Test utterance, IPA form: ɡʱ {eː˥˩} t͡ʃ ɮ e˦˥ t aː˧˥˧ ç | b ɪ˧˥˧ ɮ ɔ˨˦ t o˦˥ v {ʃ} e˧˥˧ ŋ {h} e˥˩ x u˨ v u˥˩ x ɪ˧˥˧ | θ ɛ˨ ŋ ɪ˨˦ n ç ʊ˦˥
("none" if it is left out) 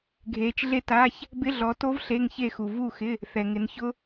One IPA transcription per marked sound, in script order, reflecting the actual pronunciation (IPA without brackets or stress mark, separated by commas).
eː˨˦, ɬ, ç